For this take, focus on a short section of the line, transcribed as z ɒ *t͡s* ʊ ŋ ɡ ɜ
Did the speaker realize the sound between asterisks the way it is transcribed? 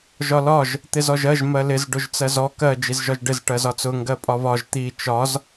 yes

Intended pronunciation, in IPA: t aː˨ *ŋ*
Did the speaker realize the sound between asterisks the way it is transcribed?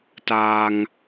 yes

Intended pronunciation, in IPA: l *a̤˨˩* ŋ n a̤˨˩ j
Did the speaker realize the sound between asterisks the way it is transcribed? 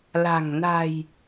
yes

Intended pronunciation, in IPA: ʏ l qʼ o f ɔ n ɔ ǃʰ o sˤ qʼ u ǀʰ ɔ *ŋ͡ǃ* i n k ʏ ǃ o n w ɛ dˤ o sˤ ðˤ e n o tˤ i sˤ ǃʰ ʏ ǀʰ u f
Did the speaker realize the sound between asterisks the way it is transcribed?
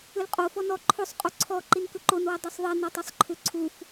no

